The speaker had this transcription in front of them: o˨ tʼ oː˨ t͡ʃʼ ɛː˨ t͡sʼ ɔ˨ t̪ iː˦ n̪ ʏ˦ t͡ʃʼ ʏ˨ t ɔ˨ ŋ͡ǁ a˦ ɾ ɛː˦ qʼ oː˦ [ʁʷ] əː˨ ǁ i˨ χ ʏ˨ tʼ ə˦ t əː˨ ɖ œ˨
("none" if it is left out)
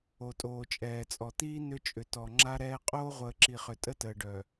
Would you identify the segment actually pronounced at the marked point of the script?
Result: ʁʷ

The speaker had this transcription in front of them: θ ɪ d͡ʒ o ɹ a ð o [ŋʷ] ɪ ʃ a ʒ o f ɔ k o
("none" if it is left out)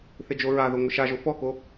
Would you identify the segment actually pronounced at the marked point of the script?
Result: ŋʷ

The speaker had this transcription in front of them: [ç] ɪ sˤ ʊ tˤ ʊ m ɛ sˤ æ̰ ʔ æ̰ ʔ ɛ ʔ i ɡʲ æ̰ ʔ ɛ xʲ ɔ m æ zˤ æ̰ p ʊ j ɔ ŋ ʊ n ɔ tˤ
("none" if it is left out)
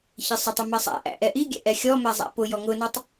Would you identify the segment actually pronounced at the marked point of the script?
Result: ç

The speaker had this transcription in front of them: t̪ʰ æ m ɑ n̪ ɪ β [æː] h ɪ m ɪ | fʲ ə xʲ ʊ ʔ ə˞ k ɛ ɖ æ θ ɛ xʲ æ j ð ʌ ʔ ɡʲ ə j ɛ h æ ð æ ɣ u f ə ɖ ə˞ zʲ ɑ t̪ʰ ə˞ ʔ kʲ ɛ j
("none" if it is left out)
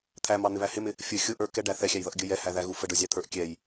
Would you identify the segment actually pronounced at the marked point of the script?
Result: æ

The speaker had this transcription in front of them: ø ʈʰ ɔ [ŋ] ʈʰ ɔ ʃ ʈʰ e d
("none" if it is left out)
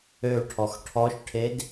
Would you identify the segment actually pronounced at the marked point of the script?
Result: x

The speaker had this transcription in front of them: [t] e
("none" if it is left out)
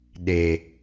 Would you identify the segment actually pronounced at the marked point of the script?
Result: ɗ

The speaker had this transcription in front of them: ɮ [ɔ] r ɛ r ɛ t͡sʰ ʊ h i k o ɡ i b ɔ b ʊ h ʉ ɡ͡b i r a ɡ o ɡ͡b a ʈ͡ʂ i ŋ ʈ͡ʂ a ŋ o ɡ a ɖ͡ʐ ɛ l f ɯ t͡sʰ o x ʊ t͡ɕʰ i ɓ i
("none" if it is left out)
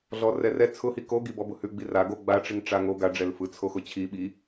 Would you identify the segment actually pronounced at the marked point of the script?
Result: ɔ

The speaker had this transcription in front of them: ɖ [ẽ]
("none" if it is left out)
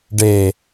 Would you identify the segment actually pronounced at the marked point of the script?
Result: e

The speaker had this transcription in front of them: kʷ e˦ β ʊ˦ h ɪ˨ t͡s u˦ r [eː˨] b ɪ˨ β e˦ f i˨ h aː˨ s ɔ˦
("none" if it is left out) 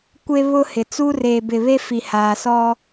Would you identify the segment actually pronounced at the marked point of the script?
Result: eː˨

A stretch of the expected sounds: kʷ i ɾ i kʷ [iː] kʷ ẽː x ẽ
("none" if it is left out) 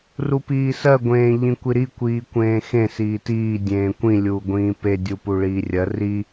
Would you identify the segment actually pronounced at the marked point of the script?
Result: iː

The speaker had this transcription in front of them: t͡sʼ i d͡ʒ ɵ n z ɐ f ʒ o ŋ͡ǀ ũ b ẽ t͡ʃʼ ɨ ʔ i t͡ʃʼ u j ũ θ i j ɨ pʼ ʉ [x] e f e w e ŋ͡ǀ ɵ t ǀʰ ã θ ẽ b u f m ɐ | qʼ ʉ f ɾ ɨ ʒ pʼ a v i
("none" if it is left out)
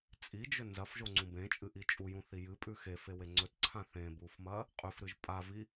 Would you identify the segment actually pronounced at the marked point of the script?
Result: x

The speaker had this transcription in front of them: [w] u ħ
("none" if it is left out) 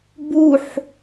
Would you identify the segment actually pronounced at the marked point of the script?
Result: b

